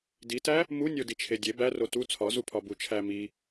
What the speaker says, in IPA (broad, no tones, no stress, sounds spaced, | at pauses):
d i t æ | m u nʲ o d i t͡ʃʰ e dʲ e b æ r o t u t͡sʰ ɒ z u pʰ ɒ b u t͡ʃʰ æ m i